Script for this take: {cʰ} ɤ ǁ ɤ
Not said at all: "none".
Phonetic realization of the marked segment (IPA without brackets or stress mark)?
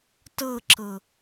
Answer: t